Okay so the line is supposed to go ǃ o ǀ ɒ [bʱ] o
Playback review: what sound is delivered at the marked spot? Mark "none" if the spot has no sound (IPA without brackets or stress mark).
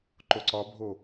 bʱ